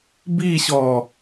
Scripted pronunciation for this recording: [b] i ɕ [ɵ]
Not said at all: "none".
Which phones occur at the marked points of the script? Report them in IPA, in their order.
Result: b, ɔ

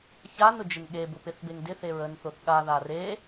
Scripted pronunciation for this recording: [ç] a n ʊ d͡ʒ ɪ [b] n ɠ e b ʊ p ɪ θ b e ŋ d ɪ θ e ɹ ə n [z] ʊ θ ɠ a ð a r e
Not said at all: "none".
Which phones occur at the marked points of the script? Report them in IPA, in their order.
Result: ç, none, θ

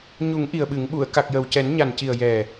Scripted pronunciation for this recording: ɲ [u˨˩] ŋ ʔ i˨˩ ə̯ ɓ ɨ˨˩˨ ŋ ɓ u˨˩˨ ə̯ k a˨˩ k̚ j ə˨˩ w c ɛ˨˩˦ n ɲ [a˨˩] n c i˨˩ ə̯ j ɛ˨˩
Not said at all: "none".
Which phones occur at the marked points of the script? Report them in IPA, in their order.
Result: u˨˩˦, a˨˩

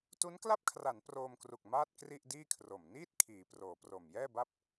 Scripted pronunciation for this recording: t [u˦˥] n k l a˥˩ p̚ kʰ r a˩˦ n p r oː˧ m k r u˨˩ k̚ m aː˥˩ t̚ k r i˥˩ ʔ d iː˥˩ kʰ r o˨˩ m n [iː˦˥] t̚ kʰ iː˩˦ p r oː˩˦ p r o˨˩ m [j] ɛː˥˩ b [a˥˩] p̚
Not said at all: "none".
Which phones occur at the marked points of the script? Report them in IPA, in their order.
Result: u˦˥, iː˥˩, j, a˥˩

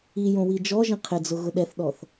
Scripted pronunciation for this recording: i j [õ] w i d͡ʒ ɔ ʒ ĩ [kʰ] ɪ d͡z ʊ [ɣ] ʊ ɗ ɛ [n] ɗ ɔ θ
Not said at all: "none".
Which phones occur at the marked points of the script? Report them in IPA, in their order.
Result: õ, qʰ, ɣ, θ

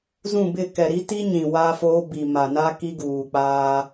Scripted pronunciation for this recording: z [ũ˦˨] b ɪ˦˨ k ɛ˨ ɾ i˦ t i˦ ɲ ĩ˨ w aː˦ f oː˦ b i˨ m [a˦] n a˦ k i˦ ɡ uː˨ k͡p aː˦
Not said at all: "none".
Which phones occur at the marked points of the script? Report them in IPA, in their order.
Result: ũ˦˨, a˨

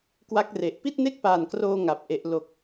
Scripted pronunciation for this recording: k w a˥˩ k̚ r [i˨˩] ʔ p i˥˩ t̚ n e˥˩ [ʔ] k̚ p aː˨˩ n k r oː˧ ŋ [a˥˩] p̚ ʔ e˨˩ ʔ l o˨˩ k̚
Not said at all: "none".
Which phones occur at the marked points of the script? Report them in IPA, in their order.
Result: e˨˩, none, a˨˩

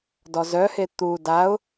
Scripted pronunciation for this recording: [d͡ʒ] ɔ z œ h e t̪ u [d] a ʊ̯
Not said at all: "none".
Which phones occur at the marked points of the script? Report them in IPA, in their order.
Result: d, d

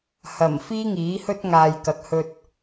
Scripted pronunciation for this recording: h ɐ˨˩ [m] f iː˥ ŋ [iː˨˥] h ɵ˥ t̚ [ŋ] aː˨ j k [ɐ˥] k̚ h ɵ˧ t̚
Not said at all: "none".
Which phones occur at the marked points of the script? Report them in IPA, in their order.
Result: m, iː˨˥, ŋ, ɐ˨˥

